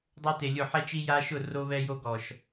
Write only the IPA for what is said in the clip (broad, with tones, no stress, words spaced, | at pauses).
dˤo˦te˨lʲʊ˦˨ ħɛ˦t͡ʃi˦ja˦ʃʊ˦˨ ro˦βɛ˦jo˦ ɡɔ˨ʃ